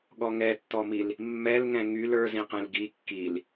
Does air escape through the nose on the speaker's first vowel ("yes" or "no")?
no